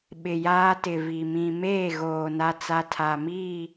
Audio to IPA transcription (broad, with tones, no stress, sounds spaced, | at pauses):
ɓ ɪ˨ j aː˦ t ɪ˨ v i˨ m ĩ˨ m eː˦˨ ɣ oː˨ n a˦ t͡s a˦ tʰ a˨ m iː˦˨